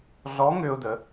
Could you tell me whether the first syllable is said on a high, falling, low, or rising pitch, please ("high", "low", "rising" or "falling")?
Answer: rising